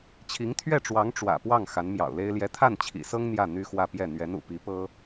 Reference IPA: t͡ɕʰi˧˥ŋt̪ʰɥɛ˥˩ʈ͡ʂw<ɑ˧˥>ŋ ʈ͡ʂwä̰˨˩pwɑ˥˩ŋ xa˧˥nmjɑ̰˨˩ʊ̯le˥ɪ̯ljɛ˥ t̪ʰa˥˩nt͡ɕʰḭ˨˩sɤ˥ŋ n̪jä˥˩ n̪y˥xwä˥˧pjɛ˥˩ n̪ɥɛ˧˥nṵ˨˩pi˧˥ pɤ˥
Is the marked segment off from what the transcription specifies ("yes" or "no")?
no